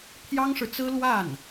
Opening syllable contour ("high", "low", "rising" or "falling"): high